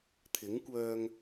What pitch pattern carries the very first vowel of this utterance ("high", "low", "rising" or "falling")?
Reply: rising